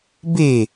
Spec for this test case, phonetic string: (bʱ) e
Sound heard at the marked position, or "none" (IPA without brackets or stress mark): b